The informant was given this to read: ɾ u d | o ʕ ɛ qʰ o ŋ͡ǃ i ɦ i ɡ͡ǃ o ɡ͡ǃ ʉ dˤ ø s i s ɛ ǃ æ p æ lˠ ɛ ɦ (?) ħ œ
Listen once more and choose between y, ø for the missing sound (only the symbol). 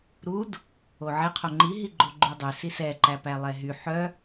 y